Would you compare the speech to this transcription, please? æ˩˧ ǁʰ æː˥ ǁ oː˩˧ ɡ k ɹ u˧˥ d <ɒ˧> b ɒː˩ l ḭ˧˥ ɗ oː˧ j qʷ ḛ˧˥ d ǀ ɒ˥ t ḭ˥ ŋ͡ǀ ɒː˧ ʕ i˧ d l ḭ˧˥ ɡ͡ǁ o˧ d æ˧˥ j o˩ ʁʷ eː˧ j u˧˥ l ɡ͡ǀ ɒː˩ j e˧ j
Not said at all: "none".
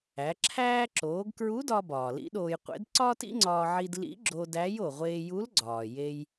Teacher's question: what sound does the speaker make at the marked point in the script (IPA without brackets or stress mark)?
ɒ˧